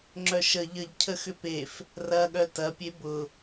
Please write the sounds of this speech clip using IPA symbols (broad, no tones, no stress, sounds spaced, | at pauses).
ŋ͡ǁ œ ʃ ə ʎ ə ʎ cʰ ə x ʏ p e f | r ɐ ɠ œ t ɐ pʲ e b ʊ